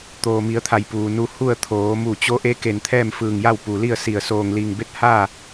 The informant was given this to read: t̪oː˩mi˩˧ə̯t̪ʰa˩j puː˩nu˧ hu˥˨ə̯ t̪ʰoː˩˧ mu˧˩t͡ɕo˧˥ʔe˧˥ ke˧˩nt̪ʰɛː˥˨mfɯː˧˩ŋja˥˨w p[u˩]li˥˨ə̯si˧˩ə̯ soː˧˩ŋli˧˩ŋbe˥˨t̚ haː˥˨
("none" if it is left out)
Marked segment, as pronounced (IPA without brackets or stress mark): u˩